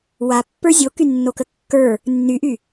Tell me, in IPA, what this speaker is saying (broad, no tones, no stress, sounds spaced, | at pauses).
w a pː ə˞ zʲ o k y nː o k ə kː ə˞ | nː y ʔ y